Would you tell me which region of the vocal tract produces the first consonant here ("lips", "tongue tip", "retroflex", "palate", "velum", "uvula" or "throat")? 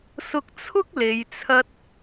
tongue tip